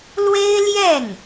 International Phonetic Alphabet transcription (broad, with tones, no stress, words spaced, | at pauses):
lwe˥ɪ̯ljɛ˥˩n